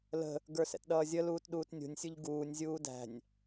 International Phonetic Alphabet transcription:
lə̤ | ɡə˞sɛ̰tɗʌːzʲə luːtɗuːtnʲṳnʲ sʲuʎɡuːnʲ zʲuːdæ̤nʲ

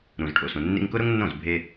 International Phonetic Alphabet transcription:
ɾũ˨zʈʰo̰˨sũ˨ nːḭ˧ŋkʊ˦ ɾʊ˦ŋnːõ˦˨z bʱe˧

